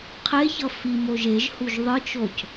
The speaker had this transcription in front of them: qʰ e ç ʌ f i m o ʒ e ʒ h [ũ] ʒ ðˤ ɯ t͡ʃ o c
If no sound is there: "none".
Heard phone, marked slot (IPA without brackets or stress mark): u